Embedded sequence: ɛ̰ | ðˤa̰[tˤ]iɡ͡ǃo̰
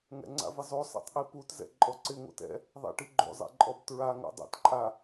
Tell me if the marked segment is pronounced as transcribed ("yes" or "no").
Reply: no